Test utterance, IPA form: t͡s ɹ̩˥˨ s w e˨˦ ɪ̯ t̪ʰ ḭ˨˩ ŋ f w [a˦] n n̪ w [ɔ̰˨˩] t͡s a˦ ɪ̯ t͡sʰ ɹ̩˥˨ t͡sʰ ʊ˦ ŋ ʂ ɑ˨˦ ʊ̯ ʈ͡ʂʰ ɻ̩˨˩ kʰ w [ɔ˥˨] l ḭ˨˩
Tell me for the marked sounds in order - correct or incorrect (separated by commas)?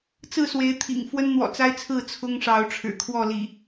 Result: incorrect, correct, correct